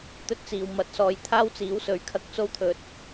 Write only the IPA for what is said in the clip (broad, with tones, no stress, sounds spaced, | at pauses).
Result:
t̪ ɵ˥ t̚ t͡s iː˨ w m ɐ˨ t̚ s ɔː˨˧ j t̪ʰ aː˥ w t͡s iː˨˥ w s ɵ˨ ɥ kʰ ɐ˧ k̚ t͡s o˥ w t̪ʰ ɵ˨ t̚